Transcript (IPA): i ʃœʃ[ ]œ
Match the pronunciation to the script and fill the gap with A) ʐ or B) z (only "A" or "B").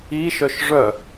A